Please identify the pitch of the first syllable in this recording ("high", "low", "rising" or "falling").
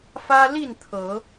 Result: high